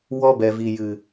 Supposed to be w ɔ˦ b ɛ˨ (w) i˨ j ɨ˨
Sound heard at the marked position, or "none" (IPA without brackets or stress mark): v